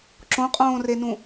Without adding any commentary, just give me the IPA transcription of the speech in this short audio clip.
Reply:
ǁ õ qʼ õː r e n ũ

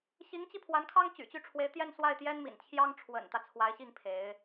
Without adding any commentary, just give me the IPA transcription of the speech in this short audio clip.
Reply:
ɕ i˧˥ ŋ t͡ɕ i˧ pʰ w a˧˥ n kʰ ɑ˥ ŋ t͡ɕ y̰˨˩ t͡ɕ y˥˩ ʈ͡ʂʰ w e˧˥ ɪ̯ t̪ j ɛ˥˧ n s w a˥˩ ɪ̯ t̪ j ɛ˥ n m ḭ˨˩ n t͡ɕʰ j ɑ˥ ŋ ʈ͡ʂʰ w ə̰˨˩ n t̪ ä˦ t͡sʰ w a˧˥ ɪ̯ ɕ i˥˩ ŋ pʰ e˧˥ ɪ̯

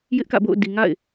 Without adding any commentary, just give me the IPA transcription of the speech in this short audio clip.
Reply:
j ɪ˦ ʔ k ä̰˦˨ b o̰˦˨ ʊ̯ d i˨ ŋ a̰˦˨ ɪ̯

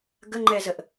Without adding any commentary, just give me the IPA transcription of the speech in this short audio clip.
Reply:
ɡ ə ŋ͡ǃ ɛ z ə ʔ

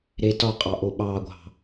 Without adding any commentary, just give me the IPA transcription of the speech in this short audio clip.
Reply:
ɾ e t ɒ qʼ ɑ ʔ o ɓ ɑ ɡʷ ɑ̤

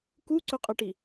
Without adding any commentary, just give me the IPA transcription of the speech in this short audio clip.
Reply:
k u ǀ ɵ qʼ ɐ ʈ i

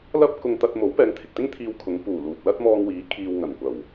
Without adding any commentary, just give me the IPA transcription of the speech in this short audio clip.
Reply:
l ɐ˥ p̚ k ʊ˧ ŋ t̪ ɐ˧ t̚ m o˨˥ w p ɛː˨˧ ŋ t̪ʰ ɪ˨ k̚ t̪ ɪ˥ ŋ t̪ʰ iː˧ w kʰ ʊ˨˧ ŋ p uː˨˩ l uː˨ t̚ l ɐ˥ t̚ m ɔː˧ ŋ w iː˨˥ kʰ iː˨ w ŋ ɐ˨˩ n kʷ ɐ˨˩ w

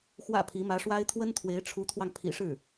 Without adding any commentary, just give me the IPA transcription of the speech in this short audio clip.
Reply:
x w ä̰˨˩ pʰ i˧˥ m ä˧˥ ʂ w a˥ ɪ̯ t̪ʰ w ə˥ n t̪ʰ w e˧˥ ɪ̯ ʈ͡ʂʰ u˧˥ t̪ʰ w ɑ˧ ŋ pʰ ḭ˨˩ ʂ ɻ̩˥˩

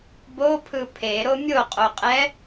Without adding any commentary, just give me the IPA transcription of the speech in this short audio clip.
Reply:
b o pʰ ɯ pʰ e ɾ o mʲ o qʼ o qʼ ɛ

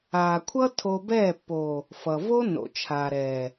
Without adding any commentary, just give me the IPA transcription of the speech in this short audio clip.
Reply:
aː˨ kʷʰ ʌ˦ tʰ o˧ b ɛː˦˨ pː o˨ | f ʌ˨ v o˦ n o̰˨ t͡ʃʰ aː˨ ɾ ɛː˨

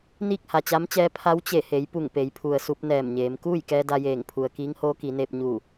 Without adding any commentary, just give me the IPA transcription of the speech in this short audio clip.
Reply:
n iː˥˨ k̚ h a˩ t͡ɕ a˧˥ m t͡ɕ ɛː˧˥ pʰ a˧˥ w t͡ɕ e˧˩ h e˩˧ j p u˧˩ ŋ p e˩˧ j pʰ u˩ ə̯ s u˧ p̚ n ɛː˧˩ m ɲ eː˩˧ m k uː˥˨ j k ɛː˧ d a˧ j eː˧˩ ŋ pʰ u˩ ə̯ k iː˧˥ ŋ h oː˧˥ k i˩˧ n eː˧ p̚ ɲ u˧˩

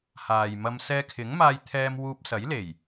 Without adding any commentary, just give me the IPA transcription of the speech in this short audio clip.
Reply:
h aː˨ j m ɐ˧ m s ɛː˧ kʰ ɪ˨˥ ŋ m aː˧ j t̪ʰ ɛː˧ m w uː˧ p̚ s ɐ˨˥ j l e˨˩ j

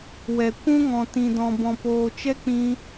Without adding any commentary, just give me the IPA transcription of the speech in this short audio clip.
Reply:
w ɛ˨ kʷ ũ˦ ŋ ɔ̃˨ t ĩ˨ d ɔ̃˨ b ɔ̃˨ p oː˨ t͡ʃ ɛ˦ k͡p ĩ˧

